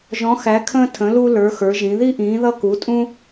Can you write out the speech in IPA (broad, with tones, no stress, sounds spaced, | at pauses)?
ʒ ɔ̃˧˥ x æ˧˥ kʰ ə̃ː˥ tʰ ə̃˧˥ l u˥ l ə˞˧˥ x ə˞˧˥ ʒ ĩ˧˥ ð i˥ ʔ ĩː˧˥ ð ʌ˥ k u˧˥ tʼ ũ˥